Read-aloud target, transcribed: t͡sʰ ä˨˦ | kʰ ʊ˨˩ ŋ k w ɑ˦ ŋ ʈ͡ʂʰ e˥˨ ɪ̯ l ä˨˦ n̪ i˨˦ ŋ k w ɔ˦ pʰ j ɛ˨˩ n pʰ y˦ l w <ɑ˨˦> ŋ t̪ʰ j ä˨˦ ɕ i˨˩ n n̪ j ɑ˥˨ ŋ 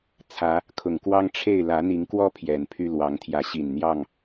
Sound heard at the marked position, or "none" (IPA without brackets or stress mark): ɑ˨˦